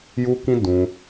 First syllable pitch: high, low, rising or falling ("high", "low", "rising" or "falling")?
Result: high